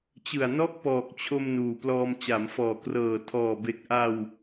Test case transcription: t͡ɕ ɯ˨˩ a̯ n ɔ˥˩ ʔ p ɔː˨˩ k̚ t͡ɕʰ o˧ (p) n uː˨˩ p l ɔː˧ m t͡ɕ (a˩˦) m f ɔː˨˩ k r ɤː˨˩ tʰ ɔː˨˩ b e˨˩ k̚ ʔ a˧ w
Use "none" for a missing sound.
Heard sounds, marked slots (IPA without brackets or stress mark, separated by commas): m, a˩˦